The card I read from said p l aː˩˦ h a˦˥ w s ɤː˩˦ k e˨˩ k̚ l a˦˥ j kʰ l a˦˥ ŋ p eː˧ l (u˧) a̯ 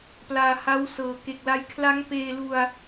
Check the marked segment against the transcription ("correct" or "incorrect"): correct